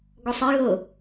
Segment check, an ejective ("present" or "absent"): absent